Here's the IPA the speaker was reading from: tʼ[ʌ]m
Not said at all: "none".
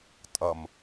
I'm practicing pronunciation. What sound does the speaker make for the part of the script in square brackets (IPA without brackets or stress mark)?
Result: ʌ